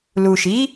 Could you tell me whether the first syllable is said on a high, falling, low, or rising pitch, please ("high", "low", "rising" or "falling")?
low